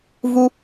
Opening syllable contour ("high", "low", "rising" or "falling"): high